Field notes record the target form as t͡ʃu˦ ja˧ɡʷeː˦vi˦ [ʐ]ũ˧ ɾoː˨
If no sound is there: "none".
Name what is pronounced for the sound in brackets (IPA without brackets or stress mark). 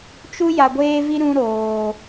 ɾ